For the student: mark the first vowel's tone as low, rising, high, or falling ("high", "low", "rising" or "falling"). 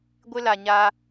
high